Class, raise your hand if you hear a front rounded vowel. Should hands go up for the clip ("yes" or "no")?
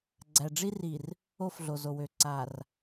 yes